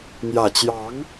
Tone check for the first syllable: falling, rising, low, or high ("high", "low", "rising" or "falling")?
low